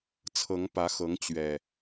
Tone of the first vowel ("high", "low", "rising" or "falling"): rising